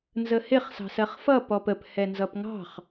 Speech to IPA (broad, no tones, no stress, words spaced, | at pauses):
nzəhɪχ sɑ̤sɜχfʌ pɔpəp hɛnzʌpŋɑ̤χ